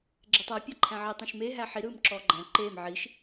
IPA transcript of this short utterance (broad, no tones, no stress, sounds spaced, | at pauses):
ɡ͡ǁ e tˤ a pʲ a ǃʰ æ̃ ʕ i tˤ ĩ ʃ m e ɦ æ ħ i ɾ ɯː m ǁ ɔː ɡ͡ǃ æ̃ ǃ eː m ʕ i ʃ